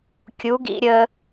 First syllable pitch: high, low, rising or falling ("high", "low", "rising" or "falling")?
rising